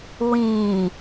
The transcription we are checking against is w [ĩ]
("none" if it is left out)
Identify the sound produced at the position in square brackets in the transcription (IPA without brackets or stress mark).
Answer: ĩ